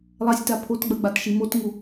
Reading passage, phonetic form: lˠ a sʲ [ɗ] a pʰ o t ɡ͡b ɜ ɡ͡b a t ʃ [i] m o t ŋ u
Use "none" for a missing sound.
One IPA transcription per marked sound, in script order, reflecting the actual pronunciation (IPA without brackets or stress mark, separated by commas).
t, i